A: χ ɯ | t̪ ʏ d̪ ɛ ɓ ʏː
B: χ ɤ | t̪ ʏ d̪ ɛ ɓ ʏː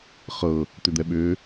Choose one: B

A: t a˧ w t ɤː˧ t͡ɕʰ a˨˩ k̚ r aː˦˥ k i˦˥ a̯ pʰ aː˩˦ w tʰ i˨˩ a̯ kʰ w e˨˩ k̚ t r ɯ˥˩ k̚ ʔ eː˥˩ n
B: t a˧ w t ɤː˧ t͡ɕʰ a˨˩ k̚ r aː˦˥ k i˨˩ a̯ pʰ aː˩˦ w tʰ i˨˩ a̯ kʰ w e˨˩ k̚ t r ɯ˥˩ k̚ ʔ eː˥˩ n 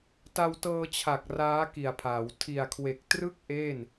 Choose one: B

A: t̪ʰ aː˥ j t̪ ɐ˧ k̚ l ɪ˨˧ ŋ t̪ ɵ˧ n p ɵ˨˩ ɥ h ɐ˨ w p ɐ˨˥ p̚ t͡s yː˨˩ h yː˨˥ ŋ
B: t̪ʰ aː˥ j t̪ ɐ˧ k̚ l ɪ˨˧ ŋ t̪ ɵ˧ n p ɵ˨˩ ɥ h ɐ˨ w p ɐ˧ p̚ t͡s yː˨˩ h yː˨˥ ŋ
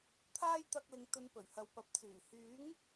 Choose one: A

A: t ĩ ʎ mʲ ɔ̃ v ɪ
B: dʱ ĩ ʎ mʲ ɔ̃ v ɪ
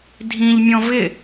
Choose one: B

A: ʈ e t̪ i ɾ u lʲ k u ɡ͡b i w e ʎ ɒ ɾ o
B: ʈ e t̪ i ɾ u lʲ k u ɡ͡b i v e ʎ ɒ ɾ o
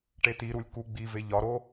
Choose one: B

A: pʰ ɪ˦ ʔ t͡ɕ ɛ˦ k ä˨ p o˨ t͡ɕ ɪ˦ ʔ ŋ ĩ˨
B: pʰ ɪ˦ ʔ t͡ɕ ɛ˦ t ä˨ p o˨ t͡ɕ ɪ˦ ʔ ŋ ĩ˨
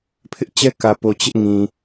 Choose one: A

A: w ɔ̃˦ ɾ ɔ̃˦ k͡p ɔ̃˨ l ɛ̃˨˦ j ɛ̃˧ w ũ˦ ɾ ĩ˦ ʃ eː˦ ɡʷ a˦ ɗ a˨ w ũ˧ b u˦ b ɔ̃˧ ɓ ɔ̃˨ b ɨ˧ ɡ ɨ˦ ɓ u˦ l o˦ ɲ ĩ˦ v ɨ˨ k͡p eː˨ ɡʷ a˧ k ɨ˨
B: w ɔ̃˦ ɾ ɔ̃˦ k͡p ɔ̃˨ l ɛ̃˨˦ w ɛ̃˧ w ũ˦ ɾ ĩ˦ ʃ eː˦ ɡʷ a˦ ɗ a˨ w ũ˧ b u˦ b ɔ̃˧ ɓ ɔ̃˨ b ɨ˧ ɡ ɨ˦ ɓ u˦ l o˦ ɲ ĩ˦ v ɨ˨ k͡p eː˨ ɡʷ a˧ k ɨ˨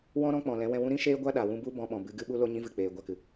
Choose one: B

